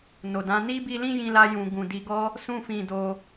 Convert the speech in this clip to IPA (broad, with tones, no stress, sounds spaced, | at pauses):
n o˨ d ã˨˦ n i˦ b i˧ l ĩ˦ j ĩ˧ l a˧ j ũ˨ ɡ ũ˨ d i˧ ɡ ɔ˦ | s ũ˦ f ĩ˧ d o˧